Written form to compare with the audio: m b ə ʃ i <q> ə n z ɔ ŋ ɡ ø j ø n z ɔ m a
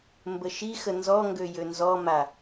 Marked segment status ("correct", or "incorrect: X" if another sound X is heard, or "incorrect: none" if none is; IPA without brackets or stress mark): incorrect: x